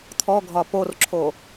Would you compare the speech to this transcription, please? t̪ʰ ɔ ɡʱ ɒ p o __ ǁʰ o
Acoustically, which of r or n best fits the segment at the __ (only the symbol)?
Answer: r